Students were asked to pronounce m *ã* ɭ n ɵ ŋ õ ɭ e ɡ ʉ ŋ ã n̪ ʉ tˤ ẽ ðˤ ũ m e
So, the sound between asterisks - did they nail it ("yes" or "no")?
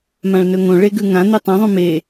yes